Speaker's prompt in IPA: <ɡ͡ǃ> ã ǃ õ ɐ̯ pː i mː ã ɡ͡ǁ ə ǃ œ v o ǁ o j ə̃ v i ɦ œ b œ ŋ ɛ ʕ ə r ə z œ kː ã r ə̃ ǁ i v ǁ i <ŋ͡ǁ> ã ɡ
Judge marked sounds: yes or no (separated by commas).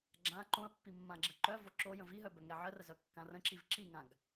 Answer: no, no